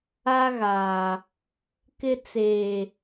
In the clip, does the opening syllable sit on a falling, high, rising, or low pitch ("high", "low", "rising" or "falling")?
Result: high